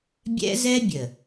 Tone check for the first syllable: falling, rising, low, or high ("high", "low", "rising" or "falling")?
high